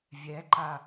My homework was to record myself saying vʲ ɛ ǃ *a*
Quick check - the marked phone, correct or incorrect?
correct